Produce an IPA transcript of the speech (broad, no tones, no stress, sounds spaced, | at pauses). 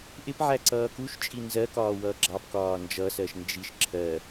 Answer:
ʔ ɪ p ʕ æ ǀ ʌː k u ʃ t͡ʃʼ i n z ɜ k ɒː w ʌː ɡ͡ǁ ɑ p k ɒː n d͡ʒ ʌ s ɜ ʃ n d͡ʒ i ʃ ǁʰ ɜ